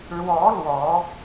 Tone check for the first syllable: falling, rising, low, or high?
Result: rising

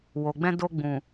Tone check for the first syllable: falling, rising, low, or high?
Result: low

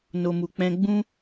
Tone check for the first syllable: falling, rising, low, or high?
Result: low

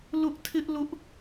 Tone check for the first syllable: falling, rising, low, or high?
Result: high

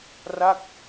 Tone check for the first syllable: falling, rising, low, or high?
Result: falling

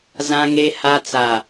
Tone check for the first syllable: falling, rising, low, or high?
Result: low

